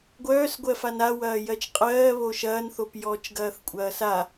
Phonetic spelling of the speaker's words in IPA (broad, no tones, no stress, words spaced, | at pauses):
ɡʷœːsɡʷɜfan awɐː jɜt͡ʃqʼɜːβo ʃɐːnθop jɔːt͡ʃɡɐːθkʷʼɐːsa